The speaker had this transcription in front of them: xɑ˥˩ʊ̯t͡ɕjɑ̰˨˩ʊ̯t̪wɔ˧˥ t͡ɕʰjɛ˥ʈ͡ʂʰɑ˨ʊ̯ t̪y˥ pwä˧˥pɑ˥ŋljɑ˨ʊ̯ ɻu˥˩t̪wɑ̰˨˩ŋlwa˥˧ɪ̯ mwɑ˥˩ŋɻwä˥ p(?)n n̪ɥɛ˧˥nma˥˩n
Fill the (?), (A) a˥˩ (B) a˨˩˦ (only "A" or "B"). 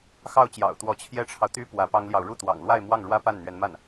A